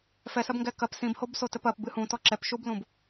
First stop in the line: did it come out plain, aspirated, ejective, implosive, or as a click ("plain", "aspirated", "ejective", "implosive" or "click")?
plain